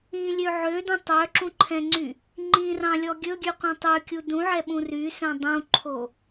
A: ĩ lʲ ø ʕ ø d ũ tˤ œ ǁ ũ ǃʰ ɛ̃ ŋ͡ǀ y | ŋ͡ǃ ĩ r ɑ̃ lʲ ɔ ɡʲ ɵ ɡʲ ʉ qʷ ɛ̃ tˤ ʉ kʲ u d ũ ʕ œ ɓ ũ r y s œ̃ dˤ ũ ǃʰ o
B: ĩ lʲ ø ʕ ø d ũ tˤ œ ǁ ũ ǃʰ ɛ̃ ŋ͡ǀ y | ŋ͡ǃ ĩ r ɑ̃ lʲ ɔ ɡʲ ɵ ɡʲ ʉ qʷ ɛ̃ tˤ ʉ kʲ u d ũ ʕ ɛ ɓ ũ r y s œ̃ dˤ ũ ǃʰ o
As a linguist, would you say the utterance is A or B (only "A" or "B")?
B